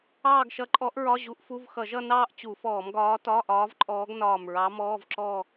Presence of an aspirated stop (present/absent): absent